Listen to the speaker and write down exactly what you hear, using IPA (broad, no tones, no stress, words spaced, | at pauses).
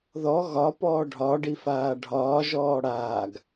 ðɔ ɣɒ pɔːɖʱɒɖi faːɖʱɒːʒɔː ɽaːɡ